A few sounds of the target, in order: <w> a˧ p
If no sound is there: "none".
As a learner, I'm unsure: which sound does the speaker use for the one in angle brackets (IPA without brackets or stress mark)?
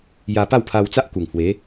j